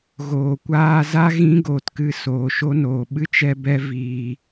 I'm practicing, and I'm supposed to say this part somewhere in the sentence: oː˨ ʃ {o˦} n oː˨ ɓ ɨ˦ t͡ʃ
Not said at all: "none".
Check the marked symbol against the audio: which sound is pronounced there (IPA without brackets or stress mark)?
o˦